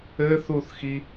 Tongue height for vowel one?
mid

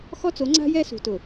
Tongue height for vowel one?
mid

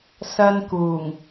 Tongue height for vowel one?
low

